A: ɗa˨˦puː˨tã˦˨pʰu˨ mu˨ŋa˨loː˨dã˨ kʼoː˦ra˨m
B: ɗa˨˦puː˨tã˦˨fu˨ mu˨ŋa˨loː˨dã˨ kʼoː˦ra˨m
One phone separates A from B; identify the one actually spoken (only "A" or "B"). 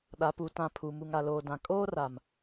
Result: A